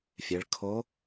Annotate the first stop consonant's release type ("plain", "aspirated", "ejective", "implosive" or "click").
aspirated